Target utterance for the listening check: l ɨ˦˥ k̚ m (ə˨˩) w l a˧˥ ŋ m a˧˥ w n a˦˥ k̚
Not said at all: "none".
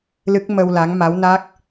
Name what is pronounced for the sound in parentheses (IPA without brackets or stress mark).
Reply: ə˧